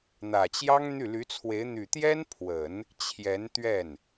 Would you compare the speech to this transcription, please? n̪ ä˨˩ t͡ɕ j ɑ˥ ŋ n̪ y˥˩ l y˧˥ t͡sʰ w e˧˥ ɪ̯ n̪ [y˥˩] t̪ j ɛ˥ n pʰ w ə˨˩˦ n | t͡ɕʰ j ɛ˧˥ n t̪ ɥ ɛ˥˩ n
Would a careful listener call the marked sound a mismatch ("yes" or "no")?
yes